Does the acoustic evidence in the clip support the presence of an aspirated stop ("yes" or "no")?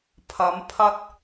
yes